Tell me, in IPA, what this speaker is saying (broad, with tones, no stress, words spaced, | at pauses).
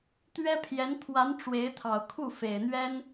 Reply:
t̪ɥɛ˥pʰjɛ˧˥n t̪ʰwa˧˥n ʈ͡ʂwe˧˥ɪ̯t̪ʰɑ˨˩ʊ̯ kʰu˥˩fe˨˩ɪ̯n̪ɥɛ˥n